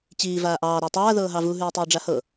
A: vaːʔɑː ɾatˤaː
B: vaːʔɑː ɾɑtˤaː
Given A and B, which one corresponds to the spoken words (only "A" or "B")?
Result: A